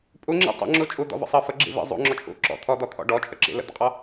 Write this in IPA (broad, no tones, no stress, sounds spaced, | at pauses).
pʼ u ŋ͡ǁ ḭ tˤ ə̰ ŋ͡ǁ u t͡ʃʼ u d̪ ɔ̰ v ə̰ sˤ ə f ə ɡ͡ǁ ḭ v ḭ zˤ ṵ ŋ͡ǁ ɔ t͡ʃʼ ṵ ǁ ɔ̰ t̪ʰ ɔ d̪ ɔ t̪ʰ ɔ̰ ɖ ɔ t͡ʃʼ ə ǁ ḭ l ə̰ d̪ ə̰ qʼ ɔ